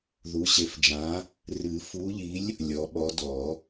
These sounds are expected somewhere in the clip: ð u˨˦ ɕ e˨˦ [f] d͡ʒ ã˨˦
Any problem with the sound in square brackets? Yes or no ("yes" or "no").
no